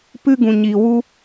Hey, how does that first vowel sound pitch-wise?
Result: high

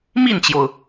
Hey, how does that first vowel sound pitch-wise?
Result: falling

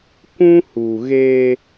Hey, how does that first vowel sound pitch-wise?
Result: high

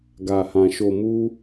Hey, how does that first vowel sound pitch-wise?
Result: low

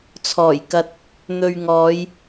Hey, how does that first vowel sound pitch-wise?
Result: low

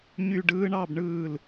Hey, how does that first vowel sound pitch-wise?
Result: falling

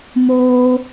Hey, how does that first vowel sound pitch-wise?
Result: high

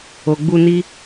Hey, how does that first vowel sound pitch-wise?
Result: low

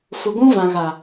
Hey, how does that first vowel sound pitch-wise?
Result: low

